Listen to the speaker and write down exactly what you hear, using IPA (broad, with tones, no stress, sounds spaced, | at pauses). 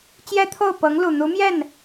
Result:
t͡ɕ j ɛ˥ t̪ʰ o˥˩ ʊ̯ p ɤ˧˥ ŋ l u˨˩ n̪ u˧˥ m j ɛ˥˩ n